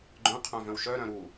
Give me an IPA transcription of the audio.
ɡ͡ǃœ̃qʰœ̃vœ̃w ʃœɾœ̃ ɾu

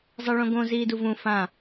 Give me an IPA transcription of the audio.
zˤiɭõɡõ ziːduvũ fã

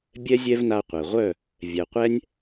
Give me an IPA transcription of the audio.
bʲɛ˦zʲɛ˦vna˧qʷɛ˨ ʁʷœ˦˨ | vʲɛ˨qʷɛ˦nʲ

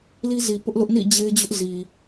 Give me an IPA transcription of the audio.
li˦zi˨ pʊ˦ʔlʊ˦ʔ nḭ˦˨d͡ʑe˦ɪ̯d͡ʑʊ˦ʔ zi˨

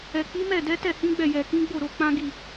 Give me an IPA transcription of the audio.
ɛ˨k͡pi˨˦mɛ˦˨ dɛ˨˦tɛ˦˨hĩ˨˦ɡ͡bɛ˦˨ jɛ˨kĩ˨˦ɡ͡bo˦˨ ɾo˧k͡pã˦ɡi˦˨

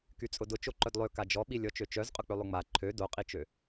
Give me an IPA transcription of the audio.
kyt͡sʼʊdʊ t͡ʃoǃœdlˠø kad͡ʒɔɓi lʲɔt͡ʃøt͡ʃœz qʼʊk͡pølˠʊŋ͡ma ǃʰø doqʼit͡ʃø

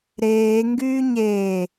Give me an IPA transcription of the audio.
ɾeːŋɡyː ɲeː

